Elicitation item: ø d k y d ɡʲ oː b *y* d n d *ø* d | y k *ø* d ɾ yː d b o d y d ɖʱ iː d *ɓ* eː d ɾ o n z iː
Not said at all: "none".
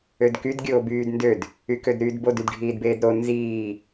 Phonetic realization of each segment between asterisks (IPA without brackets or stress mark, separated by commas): yː, ø, ø, b